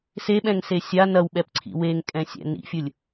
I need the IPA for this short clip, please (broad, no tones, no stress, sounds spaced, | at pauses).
s e ɓ ɛ̃ ŋ s e sʲ a n ɐ w ɓ ɛ p ǀʰ ḭ w e ŋ kʼ ɛ̃ sʲ ɛ̰ n ḭ fʲ ɯ lʲ